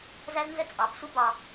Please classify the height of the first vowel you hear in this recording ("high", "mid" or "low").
low